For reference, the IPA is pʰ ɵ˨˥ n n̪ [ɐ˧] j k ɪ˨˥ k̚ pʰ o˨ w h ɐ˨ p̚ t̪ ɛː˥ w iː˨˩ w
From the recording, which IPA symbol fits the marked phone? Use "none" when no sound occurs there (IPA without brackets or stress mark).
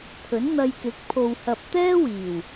ɐ˧